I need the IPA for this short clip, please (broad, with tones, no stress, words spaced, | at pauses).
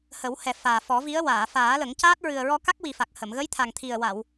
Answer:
hə˨˩˦whɛ˨˩ faː˨˩fɔ˨˩˦vi˧˥ə̯ waː˨˩˨faː˨˩˦lə˨˩˦ŋcaː˦˥t̚ ɹɨ˨˩ə̯ɹɔ˧ka˦˥k̚wi˨˩ fa˨˩k̚hə˨˩˨m ɣə˧˥jt̪ʰa˨˩ŋ t̪ʰi˨˩ə̯wa˨˩˨w